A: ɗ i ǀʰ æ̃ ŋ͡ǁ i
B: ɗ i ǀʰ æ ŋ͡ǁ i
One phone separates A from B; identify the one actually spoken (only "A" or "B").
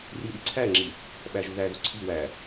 B